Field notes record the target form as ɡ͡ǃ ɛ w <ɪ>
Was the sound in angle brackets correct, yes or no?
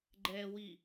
no